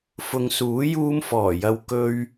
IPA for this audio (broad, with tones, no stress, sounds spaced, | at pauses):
f ʊ˨ ŋ s uː˨˥ j uː˧ m f ɔː˨˩ j ɐ˨ w k ɵ˧ ɥ